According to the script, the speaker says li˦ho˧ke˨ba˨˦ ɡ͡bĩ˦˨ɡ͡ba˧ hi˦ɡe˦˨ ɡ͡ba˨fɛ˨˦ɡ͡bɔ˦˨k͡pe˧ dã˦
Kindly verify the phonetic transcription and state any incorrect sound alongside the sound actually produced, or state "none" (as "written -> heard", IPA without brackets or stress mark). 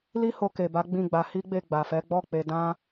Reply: ɡ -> ɡ͡b